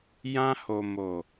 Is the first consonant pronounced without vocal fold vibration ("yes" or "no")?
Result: no